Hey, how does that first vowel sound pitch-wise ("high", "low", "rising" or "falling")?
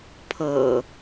low